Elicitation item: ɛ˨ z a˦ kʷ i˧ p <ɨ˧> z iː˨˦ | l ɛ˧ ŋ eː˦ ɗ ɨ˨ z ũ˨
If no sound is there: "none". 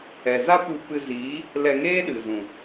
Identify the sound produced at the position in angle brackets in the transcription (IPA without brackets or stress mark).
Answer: ɨ˧